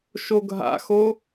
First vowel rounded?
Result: yes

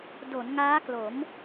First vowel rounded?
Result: yes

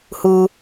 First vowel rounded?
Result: yes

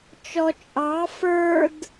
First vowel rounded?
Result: yes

